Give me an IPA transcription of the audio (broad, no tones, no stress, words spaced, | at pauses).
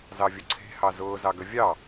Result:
zɑvʲʊǀʰe̤ hɑzʊː zɑɡəvʲɑ